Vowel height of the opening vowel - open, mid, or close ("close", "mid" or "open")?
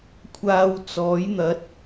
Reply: open